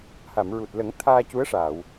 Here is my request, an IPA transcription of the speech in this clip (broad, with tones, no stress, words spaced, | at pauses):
ha˨˩˨mɹu˨˩t̚lə˨˩˦ŋ t̪ʰaː˧cu˧˥ə̯ʂaː˨˩˨w